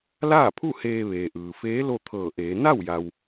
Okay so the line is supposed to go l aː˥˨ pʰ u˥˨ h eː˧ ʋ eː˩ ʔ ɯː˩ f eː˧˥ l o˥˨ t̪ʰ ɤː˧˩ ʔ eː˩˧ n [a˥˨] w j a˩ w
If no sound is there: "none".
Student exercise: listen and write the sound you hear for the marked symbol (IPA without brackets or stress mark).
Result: a˥˨